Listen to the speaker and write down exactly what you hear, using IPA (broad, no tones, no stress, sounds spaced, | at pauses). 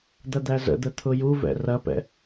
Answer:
d̪ ɐ d̪ æ z ə̰ d̪ ə t̪ʰ ʊ j u v ɛ̰ r ɐ p ɛ̰